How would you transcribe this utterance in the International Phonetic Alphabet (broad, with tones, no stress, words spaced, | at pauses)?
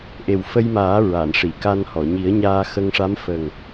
ʔe˨˩wfə˧jmaː˨˩˦ ɹa˨˩˨nʂi˨˩˨ka˧nhɔ˨˩˨ ɲi˨˩˦ə̯ɲaː˧ xə˧ŋʂa˧˥mfə˨˩ŋ